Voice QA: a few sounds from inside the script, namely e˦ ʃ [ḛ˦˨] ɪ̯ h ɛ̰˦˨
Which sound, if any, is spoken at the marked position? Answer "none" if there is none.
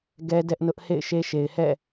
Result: e˨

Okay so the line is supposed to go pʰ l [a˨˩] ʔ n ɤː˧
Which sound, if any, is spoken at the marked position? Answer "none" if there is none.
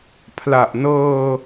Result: a˨˩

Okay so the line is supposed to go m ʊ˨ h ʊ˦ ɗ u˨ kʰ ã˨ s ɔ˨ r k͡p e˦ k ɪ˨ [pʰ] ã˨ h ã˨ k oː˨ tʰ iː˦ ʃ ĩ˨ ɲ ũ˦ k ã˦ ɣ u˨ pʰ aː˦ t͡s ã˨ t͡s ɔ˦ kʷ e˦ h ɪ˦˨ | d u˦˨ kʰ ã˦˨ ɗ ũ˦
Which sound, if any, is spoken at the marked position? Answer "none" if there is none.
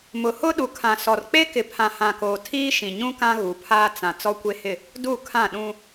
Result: pʰ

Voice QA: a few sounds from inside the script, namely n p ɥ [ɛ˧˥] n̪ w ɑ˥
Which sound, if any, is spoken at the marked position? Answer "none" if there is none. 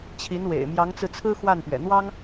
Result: ɛ̰˨˩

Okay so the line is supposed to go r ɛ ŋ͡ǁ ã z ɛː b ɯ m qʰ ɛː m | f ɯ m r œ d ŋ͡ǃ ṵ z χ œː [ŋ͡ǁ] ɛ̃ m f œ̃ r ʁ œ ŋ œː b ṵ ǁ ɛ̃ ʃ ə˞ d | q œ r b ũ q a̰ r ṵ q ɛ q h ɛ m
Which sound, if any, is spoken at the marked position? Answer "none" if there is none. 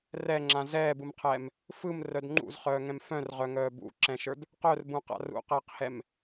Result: ŋ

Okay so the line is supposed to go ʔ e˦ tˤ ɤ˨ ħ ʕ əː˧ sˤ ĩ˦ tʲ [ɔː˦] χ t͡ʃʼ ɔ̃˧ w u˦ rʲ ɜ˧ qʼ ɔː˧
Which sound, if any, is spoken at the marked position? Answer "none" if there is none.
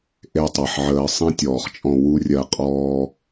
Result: ɔː˨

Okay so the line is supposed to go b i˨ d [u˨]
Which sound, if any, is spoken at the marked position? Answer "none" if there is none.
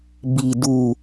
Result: u˨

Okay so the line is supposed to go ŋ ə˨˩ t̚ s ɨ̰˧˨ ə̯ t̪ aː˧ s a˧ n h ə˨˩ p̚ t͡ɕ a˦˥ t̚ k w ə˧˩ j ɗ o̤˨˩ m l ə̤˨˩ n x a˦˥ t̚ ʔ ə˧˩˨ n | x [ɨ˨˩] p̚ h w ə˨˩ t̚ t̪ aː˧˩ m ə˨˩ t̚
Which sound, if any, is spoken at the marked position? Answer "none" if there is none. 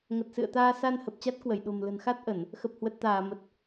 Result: ə˨˩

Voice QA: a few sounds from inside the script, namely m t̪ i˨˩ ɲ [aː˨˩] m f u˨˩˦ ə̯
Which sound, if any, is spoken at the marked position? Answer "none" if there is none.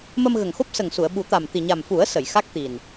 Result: a˨˩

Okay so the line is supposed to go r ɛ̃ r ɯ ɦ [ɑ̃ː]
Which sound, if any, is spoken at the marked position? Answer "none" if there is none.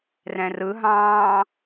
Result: ɑ̃ː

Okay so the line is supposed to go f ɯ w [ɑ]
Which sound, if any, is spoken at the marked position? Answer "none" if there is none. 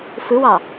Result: ɑ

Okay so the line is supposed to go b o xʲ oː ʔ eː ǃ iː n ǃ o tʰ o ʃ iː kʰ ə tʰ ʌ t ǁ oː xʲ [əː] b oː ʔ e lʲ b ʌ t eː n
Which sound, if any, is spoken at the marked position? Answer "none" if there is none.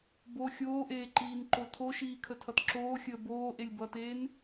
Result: əː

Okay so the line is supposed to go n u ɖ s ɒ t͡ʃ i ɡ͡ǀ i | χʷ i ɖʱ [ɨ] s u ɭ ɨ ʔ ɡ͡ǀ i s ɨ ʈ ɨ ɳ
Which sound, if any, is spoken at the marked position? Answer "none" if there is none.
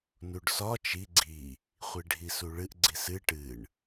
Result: i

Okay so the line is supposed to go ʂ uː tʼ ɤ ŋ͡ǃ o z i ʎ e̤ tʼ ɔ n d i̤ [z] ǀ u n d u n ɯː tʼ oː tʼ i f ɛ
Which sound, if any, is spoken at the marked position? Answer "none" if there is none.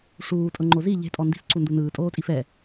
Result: s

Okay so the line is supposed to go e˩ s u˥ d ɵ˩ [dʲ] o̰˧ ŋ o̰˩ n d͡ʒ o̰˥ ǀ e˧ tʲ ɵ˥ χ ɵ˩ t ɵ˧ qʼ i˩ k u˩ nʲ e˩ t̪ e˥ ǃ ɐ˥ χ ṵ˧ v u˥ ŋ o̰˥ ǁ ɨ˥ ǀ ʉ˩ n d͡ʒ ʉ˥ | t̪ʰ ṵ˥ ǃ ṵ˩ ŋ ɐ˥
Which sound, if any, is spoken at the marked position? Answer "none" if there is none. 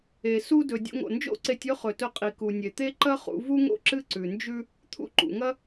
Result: dʲ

